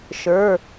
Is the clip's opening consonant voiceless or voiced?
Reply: voiceless